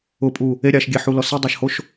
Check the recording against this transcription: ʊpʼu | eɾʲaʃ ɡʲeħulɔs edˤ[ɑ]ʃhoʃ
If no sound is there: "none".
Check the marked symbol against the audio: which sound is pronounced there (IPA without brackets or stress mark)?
a